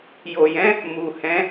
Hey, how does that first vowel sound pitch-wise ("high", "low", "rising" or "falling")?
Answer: low